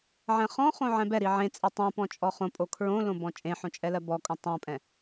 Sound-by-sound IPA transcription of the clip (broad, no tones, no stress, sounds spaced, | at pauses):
ʕ ɛ̃ χ ɔ̃ χ õ ʕ ɛ̃ b ɛ ɾ i ʕ ẽ t͡sʼ e tˤ ũ p ɔ̃ t͡ʃʼ ɔ χ õ pʼ o kʰ ɹ õ l õ b ɔ̃ t͡ʃʼ ẽ ħ õ t͡ʃʼ ɛ l ɜ b ɔ kʼ õ tˤ õ pʼ ɛ̃